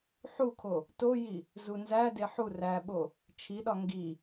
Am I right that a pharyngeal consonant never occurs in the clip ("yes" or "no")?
no